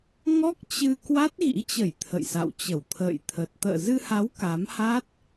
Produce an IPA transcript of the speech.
ŋ ɔ˦˥ k̚ t͡ɕ ɨ˧ k w a˦˥ t̚ ɣ ḭ˧˥ t͡ɕ ə˧˩ j t̪ʰ ə̰˧˨ j s a̰˧˨ w t͡ɕ ə˧˩ w t̪ʰ ə̰ː˧˨ j t̪ʰ ə˨˩ t̚ t̪ ə̰ː˧˨ z ɨ˧ h a˨˦ w k a˨˦ m h a˦˥ t̚

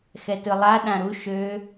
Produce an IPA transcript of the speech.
x ɛ t ɯ lˠ a ɗ ã ɾ u ʃ ø

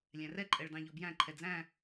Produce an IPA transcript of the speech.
lʲ æ̃ r ɛ ǃʼ ɛ ɭ d ɑ̃ ʎ ɔ b j æ̃ ǃʰ ɛ d͡z æ̃

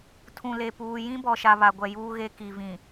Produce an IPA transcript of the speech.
tʰ ũ˨ l e˨ p uː˨ j ĩ˦ b ɔ˨ ʃ a˨ β a˨ ɡʷ ɛ˨ j uː˦ ɣ e˦ k i˨ v ĩ˨

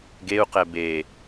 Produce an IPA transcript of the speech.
ɡ e u̯ q ɛ b e

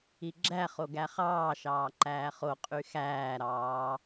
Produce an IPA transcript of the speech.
i ɡ͡ǁ æ χ o ɡ æ χ ɑː ʃ ɑː ǃ æː χ o qʼ y x æː ɾ ɑː

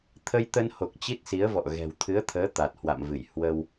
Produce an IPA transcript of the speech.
t̪ʰ ə˧ j t̪ ə˧ n h o˨˩ k̚ t͡ɕ i˦˥ t̚ s i˨˦ ə̯ v ɔ̰˧˨ ɣ ɛ̤˨˩ w t̪ʰ ɨ˨˦ ə̯ t̪ʰ əː˨˦ t̪ a˨˩ t̚ h w a̰˧˨ m v ɨ˧˩ j h w ə˧ w

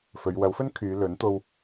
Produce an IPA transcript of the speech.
f ɵ˨˧ ɥ w ɐ˨˥ w f ɵ˥ n kʰ yː˨˧ l ɵ˨˥ n t̪ o˧ w

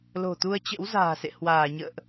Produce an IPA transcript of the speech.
l o̤˨˩ t̪ u˧ ə̯ t͡ɕ ə̰˧˥ w z a̤ː˨˩ s ḛ˧˨ h w aː˧˩ ɲ ə̰ː˧˨ ʔ

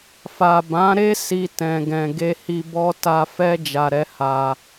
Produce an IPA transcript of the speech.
f a˨ b ã˨˦ ɾ e˦ s i˧ t ɛ̃˨ ɡ ɛ̃˨ ɡ e˧ h i˧ b ɔ˦ t a˧ f ɛ˦ d͡ʒ a˧ ɾ ɛ˦ h a˧

